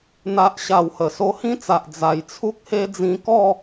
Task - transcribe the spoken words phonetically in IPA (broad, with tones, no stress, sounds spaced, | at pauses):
n̪ a˦ ʔ ɕ a˧ w h ə˨˩ s o˧ h ĩ˥˧ t͡s a˨ ʔ d͡z a˨˩ j t͡sʰ u˦ k̚ h e˦ d͡z ĩ˧ k ɔ˥˧